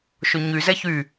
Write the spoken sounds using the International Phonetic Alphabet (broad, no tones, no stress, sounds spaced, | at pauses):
ʃ ʊ ɲ y z ɛ ç y